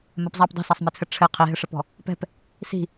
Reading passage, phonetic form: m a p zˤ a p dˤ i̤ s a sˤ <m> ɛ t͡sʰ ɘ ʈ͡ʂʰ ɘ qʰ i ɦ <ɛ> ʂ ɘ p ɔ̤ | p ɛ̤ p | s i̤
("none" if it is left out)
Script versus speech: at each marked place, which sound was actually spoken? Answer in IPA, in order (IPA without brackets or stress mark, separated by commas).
m, ɘ